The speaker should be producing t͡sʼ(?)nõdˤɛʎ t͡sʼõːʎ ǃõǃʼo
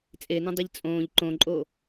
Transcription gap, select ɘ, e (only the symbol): e